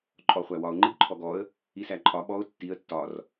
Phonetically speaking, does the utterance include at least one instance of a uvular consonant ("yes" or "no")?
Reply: yes